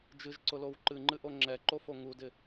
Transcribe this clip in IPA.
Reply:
d͡ʒ ɨ ʒ ǀ ʊ l o w ǃ ɨ ŋ͡ǃ ɨ ʔ o ŋ͡ǁ ɛ ǃ o f o ŋ u d ɪ

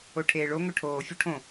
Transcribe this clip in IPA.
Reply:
o ʈʰ eː ɭ o ŋ ɵ ʈʰ oː fʲ u ʈʰ õ

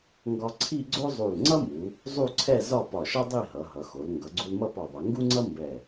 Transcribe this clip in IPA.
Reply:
ŋ ɡ ɒ˧ ǀʰ i˥˧ ɡ͡ǀ o˥ zˤ u˧˩ l ŋ͡ǀ ʌ˥ m u˩˧ | zˤ u˥˧ ǀʰ ɛ˥˧ z ɒ˥˧ p ɒ˧˩ ʃ ʌ˥ dˤ i˥˧ ɦ ʌ˩˧ ɦ ʌ˩˧ x o˩˧ l ŋ ɡ ʌ˩˧ ɡ͡ǀ u˧ l m ʌ˥˧ p ɒ˧˩ ðˤ ʌ˩˧ ŋ ɡ u˥ ŋ͡ǀ ʌ˥ m b ɛ˧˩

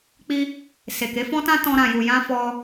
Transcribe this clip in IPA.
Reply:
k͡p i˧ | s e˨ k e˨˦ f ɔ̃˦ t ã˦ t ɔ̃˧ ɾ ã˨ j u˨ j ã˧ f ɔ˧

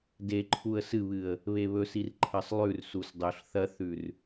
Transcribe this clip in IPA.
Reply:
d e ǃʰ u ə̯ s ɨ β ɨ ə̯ | β e β ɵ s i r ǃʰ ɐ sˤ lˠ ʉ r s u s dˤ ɵ ɬ θ ɐ θ ʉ r

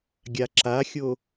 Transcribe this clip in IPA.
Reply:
ɡʲ a ǁ a xʲ o

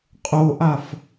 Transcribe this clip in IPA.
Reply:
qʼ o ʔ a f

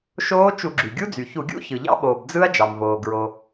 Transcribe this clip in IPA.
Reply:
ʃ oː˦˥ t͡ʃ u˧˩˧ ɡ͡ǁ y˩ ɡʲ u˦˥ d͡z y˩ ç u˧˩˧ ɡʲ ṵ˦˥ ç ɯ˩ ʎ ɑ̰˦˥ ɓ oː˩ b d͡z ɯ˦˥ ɐ̯ d͡ʒ ɑ˩ m v oː˩ ɡ ɹ o˩

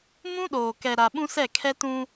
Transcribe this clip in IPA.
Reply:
m ũ˦ ɗ oː˨ k ɛ˨ ɾ a˨ ɓ ũ˦ s ɛ˦˨ kʰ ɛ˦ t ũ˦

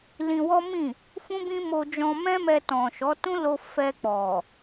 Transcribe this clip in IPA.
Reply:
l ĩ˧ w ɔ˦ m ĩ˦˨ | f ũ˦ b ĩ˦ m o˧ d͡ʒ ɔ̃˧ m ɛ̃˦ m ɛ˧ t ɔ̃˨ ʃ ɔ˨˦ t ũ˦ l o˧ f ɛ˧ k͡p ɔ˨

